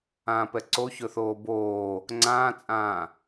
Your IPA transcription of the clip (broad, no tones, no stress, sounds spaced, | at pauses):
ãː p ɛ ǀ o ç ɵ θ oː b oː | ŋ͡ǀ ãː t͡sʼ ãː